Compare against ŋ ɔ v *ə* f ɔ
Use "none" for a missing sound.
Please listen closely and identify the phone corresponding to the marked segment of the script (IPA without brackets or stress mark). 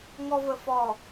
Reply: ə